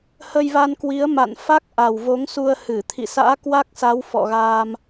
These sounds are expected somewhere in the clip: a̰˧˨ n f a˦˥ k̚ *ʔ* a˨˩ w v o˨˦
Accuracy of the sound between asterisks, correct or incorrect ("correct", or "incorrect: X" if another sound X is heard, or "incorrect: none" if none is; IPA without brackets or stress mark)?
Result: correct